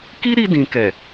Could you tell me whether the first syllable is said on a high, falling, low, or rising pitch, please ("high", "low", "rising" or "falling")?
high